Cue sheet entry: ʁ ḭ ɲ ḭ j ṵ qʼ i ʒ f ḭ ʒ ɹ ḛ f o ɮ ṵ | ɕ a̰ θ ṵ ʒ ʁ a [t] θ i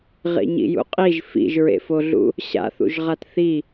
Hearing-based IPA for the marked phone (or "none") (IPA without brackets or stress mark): t